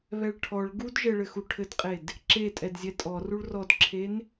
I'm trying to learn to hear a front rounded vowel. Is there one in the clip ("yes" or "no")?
no